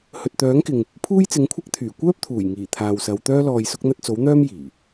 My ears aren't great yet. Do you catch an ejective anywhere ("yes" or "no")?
no